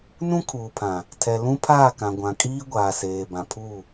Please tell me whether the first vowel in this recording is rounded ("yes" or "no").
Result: yes